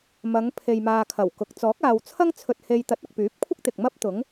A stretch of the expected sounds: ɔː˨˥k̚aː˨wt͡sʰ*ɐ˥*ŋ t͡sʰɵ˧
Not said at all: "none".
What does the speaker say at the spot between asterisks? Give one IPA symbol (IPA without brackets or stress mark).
ɐ˥